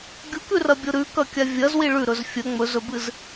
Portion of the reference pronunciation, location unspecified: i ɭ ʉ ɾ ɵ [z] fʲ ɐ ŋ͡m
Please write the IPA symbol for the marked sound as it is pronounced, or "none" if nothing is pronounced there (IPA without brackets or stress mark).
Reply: z